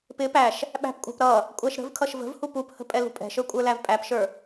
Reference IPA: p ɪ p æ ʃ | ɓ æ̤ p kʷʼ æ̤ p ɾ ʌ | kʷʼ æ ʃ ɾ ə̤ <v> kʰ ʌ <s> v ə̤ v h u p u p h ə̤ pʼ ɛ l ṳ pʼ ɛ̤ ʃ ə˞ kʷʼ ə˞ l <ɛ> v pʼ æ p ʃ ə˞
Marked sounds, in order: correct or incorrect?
correct, incorrect, incorrect

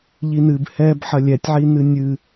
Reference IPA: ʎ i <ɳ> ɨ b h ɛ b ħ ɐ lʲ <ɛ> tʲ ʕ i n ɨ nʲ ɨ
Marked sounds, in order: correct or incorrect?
incorrect, correct

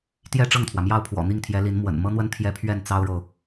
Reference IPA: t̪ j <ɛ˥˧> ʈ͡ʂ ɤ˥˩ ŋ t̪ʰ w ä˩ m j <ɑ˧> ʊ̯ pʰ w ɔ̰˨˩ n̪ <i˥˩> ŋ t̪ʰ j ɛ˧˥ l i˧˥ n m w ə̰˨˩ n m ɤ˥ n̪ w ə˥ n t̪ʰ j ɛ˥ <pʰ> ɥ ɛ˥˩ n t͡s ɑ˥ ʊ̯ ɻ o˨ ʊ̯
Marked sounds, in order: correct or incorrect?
correct, incorrect, correct, correct

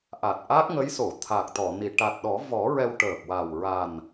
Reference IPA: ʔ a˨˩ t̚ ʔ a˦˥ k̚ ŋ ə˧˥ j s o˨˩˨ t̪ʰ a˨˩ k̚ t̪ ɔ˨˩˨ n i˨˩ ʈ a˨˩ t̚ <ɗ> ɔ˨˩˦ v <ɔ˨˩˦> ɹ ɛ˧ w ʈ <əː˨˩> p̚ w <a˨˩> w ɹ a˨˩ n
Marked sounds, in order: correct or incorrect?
correct, correct, correct, correct

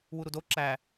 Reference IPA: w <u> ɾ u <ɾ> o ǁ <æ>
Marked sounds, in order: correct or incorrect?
correct, incorrect, correct

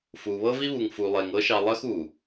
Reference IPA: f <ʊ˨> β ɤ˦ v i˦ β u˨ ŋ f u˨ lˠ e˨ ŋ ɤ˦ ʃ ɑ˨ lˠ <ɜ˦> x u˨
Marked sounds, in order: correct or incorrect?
incorrect, correct

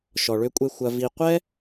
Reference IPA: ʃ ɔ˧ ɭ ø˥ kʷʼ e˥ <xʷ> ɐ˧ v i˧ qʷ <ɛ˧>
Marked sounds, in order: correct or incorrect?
correct, incorrect

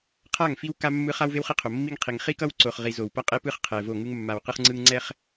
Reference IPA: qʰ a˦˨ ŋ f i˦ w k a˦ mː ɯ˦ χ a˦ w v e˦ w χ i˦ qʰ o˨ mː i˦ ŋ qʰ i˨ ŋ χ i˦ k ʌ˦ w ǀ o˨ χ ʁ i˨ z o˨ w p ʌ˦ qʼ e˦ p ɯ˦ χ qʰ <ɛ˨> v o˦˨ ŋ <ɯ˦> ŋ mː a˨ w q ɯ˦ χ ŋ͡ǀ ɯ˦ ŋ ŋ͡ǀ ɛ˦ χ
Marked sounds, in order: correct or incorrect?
correct, correct

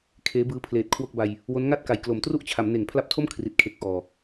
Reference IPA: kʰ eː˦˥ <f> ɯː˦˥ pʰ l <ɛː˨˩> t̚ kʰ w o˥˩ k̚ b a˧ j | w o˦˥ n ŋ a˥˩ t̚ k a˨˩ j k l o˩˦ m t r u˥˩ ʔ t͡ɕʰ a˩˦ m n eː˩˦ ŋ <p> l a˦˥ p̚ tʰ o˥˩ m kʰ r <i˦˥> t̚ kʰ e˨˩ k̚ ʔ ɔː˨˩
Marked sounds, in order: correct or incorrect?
incorrect, incorrect, incorrect, incorrect

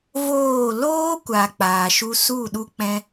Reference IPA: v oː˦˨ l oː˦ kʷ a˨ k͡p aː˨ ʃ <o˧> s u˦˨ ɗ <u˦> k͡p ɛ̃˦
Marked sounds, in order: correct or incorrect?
incorrect, correct

